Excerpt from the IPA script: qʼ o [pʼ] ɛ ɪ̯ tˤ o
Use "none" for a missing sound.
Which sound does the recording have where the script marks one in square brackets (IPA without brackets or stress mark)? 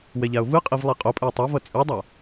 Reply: pʼ